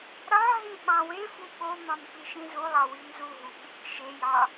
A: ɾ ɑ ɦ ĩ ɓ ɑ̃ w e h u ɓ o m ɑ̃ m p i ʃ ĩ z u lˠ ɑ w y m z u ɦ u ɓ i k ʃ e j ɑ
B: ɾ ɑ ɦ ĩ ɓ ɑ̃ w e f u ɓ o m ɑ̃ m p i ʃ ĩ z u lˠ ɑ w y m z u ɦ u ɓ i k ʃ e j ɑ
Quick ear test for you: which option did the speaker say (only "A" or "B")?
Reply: B